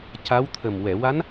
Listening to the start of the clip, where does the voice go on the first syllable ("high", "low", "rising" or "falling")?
rising